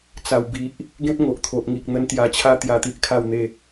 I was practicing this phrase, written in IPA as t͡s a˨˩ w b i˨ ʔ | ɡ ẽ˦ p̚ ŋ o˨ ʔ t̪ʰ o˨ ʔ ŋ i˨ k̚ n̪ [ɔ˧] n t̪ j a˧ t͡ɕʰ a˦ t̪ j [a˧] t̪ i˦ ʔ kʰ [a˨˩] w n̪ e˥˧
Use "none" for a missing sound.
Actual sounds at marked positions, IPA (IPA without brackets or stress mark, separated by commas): ə˧, a˧, a˥˧